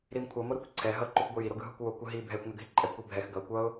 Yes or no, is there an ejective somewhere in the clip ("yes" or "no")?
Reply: yes